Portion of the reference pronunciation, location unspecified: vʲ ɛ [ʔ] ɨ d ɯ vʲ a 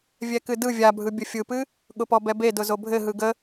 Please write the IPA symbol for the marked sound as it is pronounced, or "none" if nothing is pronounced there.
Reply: k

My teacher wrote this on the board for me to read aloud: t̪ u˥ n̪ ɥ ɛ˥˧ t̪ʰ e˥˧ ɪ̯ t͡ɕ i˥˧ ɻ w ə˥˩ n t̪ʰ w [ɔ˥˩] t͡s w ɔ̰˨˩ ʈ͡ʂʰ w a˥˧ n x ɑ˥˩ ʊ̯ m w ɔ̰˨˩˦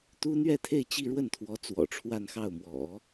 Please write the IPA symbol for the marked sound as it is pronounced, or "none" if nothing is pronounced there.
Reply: ɔ˧˥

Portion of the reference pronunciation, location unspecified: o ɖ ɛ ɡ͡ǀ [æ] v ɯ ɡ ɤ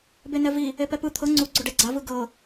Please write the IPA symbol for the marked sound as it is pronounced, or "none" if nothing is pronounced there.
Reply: a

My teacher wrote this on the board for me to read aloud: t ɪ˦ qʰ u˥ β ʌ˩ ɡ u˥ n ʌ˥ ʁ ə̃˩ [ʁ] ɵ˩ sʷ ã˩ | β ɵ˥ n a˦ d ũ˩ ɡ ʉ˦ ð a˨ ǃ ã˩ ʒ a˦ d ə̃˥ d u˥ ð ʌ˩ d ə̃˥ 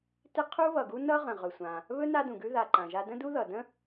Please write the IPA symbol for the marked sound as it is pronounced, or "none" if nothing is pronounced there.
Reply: ʁ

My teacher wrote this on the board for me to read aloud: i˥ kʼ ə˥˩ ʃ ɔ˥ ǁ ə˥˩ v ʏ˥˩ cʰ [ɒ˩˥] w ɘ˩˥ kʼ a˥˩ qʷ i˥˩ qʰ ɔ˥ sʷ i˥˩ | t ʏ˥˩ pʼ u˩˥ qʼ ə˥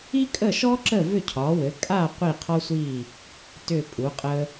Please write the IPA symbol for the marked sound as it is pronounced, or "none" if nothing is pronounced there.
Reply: ɒ˩˥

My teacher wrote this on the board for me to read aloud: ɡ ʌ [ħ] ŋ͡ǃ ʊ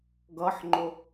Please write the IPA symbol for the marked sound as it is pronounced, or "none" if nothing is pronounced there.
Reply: ħ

